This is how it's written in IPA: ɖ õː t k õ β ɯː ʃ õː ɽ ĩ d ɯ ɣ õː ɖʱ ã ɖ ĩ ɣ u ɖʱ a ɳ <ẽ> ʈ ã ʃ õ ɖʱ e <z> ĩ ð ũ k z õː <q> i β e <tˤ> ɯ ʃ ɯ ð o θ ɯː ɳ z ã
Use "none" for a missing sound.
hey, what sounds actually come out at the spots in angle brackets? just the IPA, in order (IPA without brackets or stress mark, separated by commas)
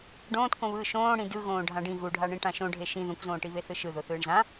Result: ĩ, ʃ, ʈ, θ